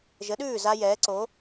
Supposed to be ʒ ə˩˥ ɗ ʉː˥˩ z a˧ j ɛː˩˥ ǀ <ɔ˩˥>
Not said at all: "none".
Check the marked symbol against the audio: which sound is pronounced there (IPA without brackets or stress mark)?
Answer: o˩˥